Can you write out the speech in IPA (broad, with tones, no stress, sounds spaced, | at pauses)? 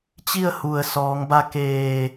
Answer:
t͡ɕ i˥˨ ə̯ h u˩ ə̯ s ɔː˩˧ ŋ b a˧ k eː˧˩